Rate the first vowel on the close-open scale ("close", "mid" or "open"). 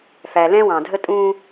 open